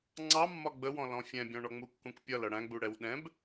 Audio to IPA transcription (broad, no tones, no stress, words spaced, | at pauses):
ŋ͡ǀɑmːɒ ɡ͡bəwɔ̃lɔ̃ fʲɛ̃bʲɔ̃ɳɔ ŋ͡mukːũkpʲʌ lʌɽæ̃ɡ͡bu ɽɛwɗɛ̃b